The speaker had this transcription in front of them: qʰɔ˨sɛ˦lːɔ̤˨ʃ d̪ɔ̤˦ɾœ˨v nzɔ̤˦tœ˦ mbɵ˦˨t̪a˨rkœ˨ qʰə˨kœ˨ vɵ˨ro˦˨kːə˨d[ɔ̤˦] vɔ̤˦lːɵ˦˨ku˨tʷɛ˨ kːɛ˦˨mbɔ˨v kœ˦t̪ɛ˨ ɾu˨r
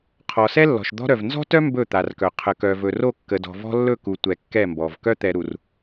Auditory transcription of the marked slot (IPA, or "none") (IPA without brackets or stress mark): ɔ̤˨